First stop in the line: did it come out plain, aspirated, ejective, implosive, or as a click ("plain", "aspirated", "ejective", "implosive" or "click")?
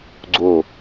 click